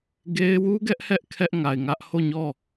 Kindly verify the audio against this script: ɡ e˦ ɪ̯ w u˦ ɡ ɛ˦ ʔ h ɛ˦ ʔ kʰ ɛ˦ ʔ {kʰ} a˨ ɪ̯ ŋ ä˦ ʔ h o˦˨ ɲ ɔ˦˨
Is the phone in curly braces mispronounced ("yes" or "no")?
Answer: yes